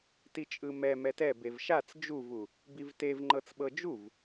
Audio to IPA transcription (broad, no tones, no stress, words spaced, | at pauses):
tit͡ʃʼɯmɛ mɛtɛbev ʃat͡s d͡ʒuvu | bivtevŋ͡ǃɤt͡s ɓɤd͡ʒuv